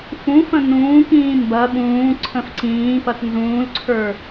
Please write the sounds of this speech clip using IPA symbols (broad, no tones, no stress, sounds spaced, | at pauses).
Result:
f ũ f ə̃ n ũː k ĩː m b ɐ ɓ ũː ǀʰ ə̃ f ǀ ĩː p ɐ t n z ũː l ǀʰ ə˞